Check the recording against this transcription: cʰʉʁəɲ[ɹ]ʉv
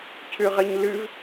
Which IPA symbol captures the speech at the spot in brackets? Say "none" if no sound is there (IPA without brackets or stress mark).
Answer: l